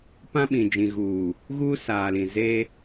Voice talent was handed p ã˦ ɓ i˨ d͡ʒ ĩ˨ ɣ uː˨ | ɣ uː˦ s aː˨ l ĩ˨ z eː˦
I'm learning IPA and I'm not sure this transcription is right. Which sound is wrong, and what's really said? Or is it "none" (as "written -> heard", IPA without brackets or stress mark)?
i˨ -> ĩ˨